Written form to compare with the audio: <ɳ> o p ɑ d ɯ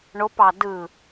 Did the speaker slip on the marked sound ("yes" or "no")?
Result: no